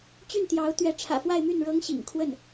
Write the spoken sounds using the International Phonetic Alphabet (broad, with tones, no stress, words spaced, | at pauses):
t͡ɕy˥˩nt̪jɑ˧˥ʊ̯ t̪ɥɛ˧˥ ʈ͡ʂʰä̰˨˩fwa˥˧ɪ̯my˥˩n ɻɤ˥ŋɕḭ˨˩ŋkʰwə˥˩n